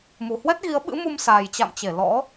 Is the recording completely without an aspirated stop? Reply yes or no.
yes